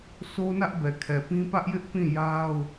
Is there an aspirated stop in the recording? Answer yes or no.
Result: yes